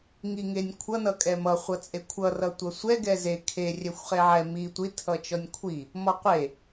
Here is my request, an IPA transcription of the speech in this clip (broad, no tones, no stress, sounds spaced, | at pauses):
ŋ i ŋ e nʲ kʷʰ ʌ n ʌ kʼ ɛ m ʌ χʷ ʌ t͡sʼ e kʷʰ ʌ r ʌ tʷ ʌ sʷ ɛ ɡ ɛ z e kʰ e rʲ ɛ xʷ χ e ʕ ɛ m i tʷ i tʰ ʌ t͡ʃ ɔ nʲ kʷʰ i | m ɔ qʷ e